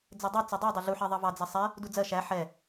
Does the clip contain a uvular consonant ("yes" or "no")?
no